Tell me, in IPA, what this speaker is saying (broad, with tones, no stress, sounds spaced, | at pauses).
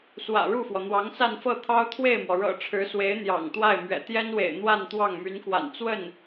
s w ä̰˨˩ ɻ u˥˩ f w ɔ˩ n̪ w ɑ˧˥ ŋ s a˥˧ n f ɤ˥˩ t̪ʰ ɑ˥ ʊ̯ t̪ʰ w e˥˩ ɪ̯ m w ɔ˩ ɻ ɤ̰˨˩ ʈ͡ʂʰ ɻ̩˧˥ s w e˧˥ ɪ̯ n̪ j ɑ̰˨˩ ŋ t̪ w a˥˩ ɪ̯ m ɥ ɛ̰˨˩ t̪ j ɛ˥ n w ḛ˨˩ ɪ̯ n̪ w a˥˧ n t̪ w ɑ˥˩ ŋ m y˧˥ n k w a̰˨˩ n t͡s w ə˥˩ n